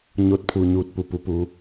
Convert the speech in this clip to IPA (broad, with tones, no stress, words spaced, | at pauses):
ɲo˧t̚pʰu˩ ɲuː˧˩t̚ pu˩pu˩˧puː˩˧